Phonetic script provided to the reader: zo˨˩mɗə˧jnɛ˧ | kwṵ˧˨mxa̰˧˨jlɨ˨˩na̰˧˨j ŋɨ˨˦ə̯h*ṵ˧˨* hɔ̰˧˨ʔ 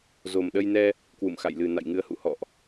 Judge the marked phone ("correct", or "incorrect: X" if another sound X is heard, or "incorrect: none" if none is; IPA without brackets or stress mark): correct